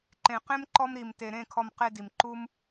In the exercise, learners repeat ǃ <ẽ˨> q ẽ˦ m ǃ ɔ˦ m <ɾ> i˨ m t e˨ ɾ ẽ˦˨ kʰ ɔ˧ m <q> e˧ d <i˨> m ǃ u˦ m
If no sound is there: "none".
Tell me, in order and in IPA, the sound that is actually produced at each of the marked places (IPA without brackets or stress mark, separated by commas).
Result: ẽ˨, ɾ, q, i˨